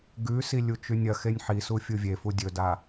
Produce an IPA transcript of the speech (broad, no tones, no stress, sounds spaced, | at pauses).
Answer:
ɡ ʉ s i lʲ u t͡ʃ ʉ nʲ ɐ x e nʲ ħ i s u fʲ u vʲ e f u dʲ ɵ d a